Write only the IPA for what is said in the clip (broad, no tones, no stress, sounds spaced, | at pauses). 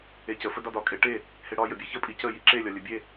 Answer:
e c ə f ə d ɒ d ɒ kʼ e ʈ e | h e ɽ ɒ j ə bʲ e ç ə pʼ i c ə j i ǁ e lʲ ɒ lʲ ə bʲ e